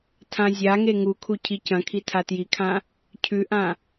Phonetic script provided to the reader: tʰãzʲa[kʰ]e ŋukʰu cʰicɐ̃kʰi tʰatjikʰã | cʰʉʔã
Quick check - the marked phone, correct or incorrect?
incorrect: ŋ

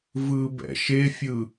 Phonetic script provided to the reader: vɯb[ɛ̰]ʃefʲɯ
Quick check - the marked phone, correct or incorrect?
correct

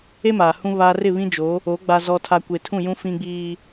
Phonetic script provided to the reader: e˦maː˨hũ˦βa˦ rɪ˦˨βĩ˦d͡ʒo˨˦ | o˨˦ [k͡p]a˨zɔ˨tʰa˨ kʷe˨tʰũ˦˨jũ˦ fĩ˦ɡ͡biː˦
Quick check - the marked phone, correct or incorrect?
incorrect: ɡ͡b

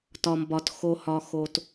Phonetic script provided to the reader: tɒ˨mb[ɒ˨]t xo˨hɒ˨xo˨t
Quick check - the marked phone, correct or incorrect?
correct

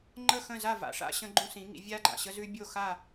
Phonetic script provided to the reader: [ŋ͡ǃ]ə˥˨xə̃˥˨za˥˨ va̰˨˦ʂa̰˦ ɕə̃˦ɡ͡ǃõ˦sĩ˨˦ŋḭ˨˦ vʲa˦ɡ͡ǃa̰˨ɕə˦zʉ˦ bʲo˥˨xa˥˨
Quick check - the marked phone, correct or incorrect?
correct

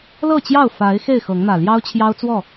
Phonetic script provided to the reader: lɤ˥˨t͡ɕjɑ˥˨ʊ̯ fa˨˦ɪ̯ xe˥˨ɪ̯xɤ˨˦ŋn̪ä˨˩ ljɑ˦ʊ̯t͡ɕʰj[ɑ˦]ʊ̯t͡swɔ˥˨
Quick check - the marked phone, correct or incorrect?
correct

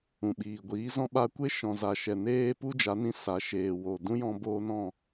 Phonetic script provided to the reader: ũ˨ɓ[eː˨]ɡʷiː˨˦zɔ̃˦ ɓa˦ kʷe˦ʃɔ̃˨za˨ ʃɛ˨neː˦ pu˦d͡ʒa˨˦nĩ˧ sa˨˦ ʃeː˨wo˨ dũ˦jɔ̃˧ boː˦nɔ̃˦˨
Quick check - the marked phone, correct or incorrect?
incorrect: iː˨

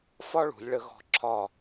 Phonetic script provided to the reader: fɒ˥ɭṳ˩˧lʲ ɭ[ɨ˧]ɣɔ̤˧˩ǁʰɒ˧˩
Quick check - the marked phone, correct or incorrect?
incorrect: ə˧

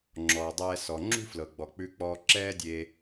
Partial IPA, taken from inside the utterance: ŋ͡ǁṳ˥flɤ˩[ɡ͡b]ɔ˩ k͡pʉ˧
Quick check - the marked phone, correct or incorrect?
correct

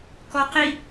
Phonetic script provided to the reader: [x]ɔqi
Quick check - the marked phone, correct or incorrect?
incorrect: k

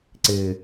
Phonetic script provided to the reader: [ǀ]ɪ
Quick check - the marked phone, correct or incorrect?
correct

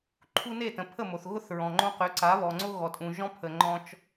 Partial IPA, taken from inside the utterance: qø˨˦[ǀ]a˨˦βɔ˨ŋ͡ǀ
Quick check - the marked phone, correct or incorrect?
correct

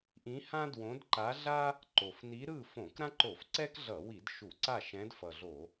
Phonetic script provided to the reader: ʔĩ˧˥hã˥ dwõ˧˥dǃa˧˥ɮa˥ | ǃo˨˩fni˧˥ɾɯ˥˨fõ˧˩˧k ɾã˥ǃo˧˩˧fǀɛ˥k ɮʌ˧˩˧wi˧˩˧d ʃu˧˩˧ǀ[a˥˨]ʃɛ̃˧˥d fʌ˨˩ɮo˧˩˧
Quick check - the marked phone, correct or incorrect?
correct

